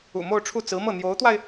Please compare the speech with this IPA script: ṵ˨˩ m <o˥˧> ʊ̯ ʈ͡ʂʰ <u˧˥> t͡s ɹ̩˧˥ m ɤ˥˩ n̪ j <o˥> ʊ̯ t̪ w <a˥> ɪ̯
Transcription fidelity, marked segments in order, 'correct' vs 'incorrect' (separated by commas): correct, incorrect, incorrect, incorrect